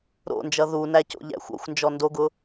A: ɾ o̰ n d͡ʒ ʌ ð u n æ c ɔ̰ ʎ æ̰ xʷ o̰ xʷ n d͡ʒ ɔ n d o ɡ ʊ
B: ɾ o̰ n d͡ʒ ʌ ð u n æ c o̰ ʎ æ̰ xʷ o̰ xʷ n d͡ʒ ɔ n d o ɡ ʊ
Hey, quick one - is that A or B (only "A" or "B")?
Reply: B